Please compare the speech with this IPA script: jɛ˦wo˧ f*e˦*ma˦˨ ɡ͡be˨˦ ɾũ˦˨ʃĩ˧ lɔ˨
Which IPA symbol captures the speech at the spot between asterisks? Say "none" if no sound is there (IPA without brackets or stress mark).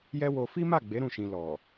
i˦